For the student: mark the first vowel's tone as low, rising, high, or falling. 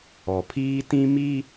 low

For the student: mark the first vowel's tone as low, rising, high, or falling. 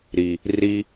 low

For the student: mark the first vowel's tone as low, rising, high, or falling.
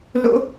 high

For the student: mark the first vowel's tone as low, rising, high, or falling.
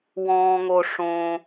high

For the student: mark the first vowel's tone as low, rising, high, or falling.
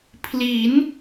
rising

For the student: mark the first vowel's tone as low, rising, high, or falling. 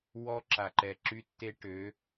high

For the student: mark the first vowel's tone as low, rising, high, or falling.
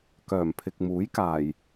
low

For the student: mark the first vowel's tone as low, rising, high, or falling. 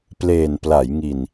low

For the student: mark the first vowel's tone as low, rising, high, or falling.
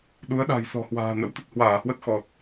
rising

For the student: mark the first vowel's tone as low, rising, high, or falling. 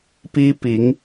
high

